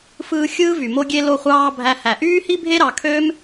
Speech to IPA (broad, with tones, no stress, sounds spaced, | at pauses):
f ɯː˧ xʲ ɯː˦ v y˨ m o˧ ɡʲ e˧ l o˧ χʷ ɑː˧ bʱ æ˧ h æ˨ ʔ yː˦ h i˦ bʱ e˦ ɾ ɑ˨ kʰ ø˦ m